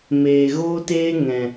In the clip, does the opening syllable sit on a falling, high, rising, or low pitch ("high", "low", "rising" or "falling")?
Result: low